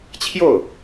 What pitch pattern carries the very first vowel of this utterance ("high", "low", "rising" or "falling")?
falling